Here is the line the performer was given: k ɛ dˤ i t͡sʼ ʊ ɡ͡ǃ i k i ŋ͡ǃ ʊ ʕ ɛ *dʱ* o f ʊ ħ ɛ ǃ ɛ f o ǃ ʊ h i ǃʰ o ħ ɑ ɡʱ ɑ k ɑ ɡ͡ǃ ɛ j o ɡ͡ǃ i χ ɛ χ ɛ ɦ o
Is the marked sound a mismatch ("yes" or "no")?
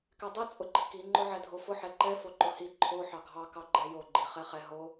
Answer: no